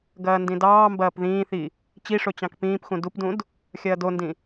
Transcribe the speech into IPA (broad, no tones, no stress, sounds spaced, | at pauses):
ɡ ɐː n d ĩ d ɑː m b ɐː p ð ĩː θ i | t͡ɕ i ʂ o t͡ɕ ɑ̃ k p ĩː p x ũ d u p d ũ d | xʲ ɐː d o n d ĩ